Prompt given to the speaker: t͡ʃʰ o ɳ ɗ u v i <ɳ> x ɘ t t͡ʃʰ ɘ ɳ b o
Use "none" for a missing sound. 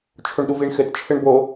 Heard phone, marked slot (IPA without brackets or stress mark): ɳ